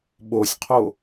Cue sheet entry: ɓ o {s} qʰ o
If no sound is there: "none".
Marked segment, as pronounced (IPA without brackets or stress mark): sʲ